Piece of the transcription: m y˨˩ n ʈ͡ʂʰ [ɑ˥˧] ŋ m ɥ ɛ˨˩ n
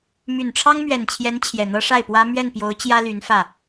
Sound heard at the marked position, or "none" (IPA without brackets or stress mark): ɑ˥